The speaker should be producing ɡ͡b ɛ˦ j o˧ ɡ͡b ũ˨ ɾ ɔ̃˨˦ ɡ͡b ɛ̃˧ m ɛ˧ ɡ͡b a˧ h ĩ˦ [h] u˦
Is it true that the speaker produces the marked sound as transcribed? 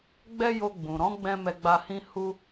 yes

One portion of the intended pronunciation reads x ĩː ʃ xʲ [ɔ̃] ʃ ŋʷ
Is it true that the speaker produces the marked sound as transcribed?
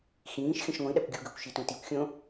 no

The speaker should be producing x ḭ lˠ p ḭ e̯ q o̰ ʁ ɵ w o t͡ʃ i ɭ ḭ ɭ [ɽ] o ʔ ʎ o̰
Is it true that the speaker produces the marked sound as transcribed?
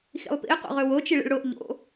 yes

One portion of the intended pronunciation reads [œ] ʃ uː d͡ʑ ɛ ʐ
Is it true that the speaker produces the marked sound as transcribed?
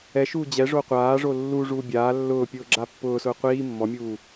no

